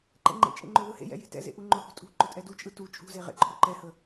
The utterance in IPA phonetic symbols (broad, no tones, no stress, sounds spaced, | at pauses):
ǃ ɛ̰ ŋ͡ǃ ḛ t͡ʃʼ ḛ ŋ͡ǃ o ð ɯ h ḛ j ɛ̰ j e̤ t ɛ̰ z ḛ ʔ u ŋ͡ǃ ʊ h ṳ tʼ ṳ ǃ ʊ tʼ ɛ d u t͡ʃʼ ɯ t u t͡ʃʼ ṳ z e ʁ ḛ ǃʰ o ǃ ɛ h ə